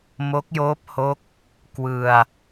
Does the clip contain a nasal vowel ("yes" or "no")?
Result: no